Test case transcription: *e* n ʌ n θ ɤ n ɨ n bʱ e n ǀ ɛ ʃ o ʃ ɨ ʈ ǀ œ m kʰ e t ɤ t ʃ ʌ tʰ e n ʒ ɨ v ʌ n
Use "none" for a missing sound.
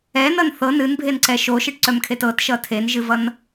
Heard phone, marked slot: ɛ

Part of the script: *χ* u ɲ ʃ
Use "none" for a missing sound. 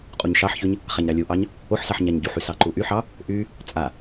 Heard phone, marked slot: qʼ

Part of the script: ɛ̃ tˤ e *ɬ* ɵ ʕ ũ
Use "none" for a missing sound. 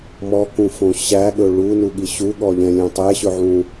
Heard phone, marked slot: ɕ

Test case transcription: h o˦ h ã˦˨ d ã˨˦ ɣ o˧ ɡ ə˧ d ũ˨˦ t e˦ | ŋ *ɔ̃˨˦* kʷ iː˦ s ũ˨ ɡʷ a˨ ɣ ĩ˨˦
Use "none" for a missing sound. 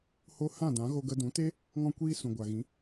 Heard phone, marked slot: ɔ̃˦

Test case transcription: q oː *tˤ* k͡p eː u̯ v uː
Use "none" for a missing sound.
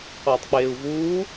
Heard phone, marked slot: tˤ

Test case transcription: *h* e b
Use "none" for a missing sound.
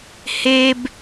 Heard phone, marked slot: h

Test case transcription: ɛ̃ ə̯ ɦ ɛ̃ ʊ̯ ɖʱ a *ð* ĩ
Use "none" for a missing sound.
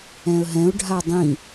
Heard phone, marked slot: dˤ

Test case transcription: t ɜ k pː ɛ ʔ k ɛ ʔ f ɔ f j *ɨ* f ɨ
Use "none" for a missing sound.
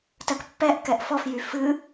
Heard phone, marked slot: y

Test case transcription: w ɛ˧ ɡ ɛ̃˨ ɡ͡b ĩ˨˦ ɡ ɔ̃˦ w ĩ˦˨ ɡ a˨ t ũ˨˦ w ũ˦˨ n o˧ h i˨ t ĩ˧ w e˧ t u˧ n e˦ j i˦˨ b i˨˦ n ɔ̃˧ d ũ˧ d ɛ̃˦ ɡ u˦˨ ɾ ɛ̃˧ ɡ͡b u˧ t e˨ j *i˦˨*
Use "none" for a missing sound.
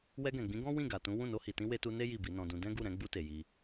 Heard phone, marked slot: i˧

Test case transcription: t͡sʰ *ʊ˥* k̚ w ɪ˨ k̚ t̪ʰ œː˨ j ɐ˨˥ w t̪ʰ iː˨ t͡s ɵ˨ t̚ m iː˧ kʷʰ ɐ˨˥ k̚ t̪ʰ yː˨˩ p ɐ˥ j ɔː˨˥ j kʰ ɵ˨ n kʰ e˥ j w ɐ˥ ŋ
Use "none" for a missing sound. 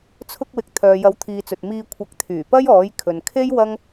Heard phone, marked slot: ʊ˧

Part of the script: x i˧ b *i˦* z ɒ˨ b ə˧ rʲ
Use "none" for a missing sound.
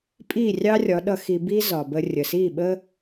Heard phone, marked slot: i˦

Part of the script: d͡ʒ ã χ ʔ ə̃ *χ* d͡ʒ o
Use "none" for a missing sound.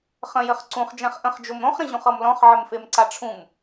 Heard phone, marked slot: χ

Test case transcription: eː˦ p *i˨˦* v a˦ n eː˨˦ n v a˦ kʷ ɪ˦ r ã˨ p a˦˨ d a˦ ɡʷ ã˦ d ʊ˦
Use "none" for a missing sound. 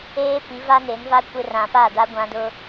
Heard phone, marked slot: i˨˦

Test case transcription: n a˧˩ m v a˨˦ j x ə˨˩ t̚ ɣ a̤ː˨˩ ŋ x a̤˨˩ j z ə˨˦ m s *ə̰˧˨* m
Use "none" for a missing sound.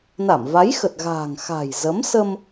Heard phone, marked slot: ə˧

